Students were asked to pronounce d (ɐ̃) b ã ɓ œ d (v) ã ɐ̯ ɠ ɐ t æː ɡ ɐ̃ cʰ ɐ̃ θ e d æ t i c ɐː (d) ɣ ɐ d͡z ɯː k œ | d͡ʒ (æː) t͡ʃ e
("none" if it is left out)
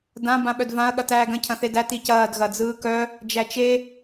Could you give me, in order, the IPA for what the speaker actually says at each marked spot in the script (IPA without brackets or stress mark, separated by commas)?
ã, v, d, æ